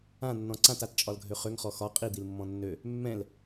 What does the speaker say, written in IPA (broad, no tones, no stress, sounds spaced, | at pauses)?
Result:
ã nː ɔ̃ ǀ ã t a t t͡ʃʼ ɒ l ɡʱ ø χ ø ŋ χ ɔ x ɒ qʼ i d̪ i l mː ɔ̃ nː ø | mː ɛ̃ l